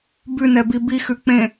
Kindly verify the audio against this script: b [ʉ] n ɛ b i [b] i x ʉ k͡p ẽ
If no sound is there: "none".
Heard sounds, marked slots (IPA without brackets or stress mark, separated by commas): ʉ, b